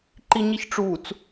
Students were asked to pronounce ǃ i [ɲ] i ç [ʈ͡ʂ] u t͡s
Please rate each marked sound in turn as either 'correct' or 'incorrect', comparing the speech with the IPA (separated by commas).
correct, correct